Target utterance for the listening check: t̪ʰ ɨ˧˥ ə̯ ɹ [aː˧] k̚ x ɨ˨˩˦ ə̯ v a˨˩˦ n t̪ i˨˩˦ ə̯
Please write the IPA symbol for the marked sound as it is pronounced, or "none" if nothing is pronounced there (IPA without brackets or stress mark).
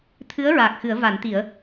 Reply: aː˨˩